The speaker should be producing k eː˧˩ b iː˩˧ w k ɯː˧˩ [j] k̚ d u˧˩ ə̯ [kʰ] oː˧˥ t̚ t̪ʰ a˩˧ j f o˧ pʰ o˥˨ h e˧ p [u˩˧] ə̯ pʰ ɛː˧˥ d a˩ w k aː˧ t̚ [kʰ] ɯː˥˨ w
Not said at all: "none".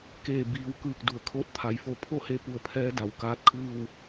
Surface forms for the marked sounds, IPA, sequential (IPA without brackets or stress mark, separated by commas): none, kʰ, u˧, kʰ